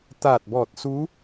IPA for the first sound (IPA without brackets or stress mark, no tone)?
t̪